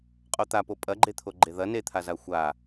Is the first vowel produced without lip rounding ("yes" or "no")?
no